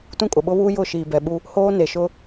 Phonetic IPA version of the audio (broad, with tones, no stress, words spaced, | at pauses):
tũ˦kʼʊ˨ɓʊ˦βuː˦ jʊ˦˨ ʃiː˨bɛ˨ɓu˦ | hoː˦ ne˨ʃʊ˦